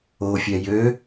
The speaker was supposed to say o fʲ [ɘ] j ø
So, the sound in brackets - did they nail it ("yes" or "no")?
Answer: no